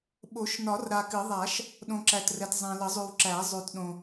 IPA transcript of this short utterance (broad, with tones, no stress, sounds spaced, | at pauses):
ɓ o˨˩˦ ʃ n ɒ˨˩˦ r ɾ a˨ k ɨ˨˩˦ ðˤ a˨˩˦ ʃ | ɗ õ˨ ǁ æ˨ t r ɛ˨ t zˤ ɛ̃˨ l ə˨˩˦ zˤ ʉ˨ w ǁ æ˨˩˦ zˤ ʉ˨ t ɗ õ˨